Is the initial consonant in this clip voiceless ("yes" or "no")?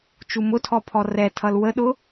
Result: yes